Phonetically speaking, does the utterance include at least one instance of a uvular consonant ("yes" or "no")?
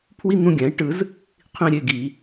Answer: yes